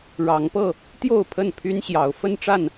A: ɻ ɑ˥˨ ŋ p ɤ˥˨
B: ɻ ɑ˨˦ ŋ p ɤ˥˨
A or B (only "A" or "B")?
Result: B